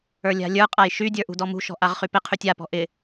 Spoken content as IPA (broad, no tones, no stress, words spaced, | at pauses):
ə˞lʲa̤lʲə˞qʼaj ʃydʲə˞ ʔṳdɔmṳʃɔ̤ ʔaʁχypɪqʰytʲ apɔ̤ ʔɪ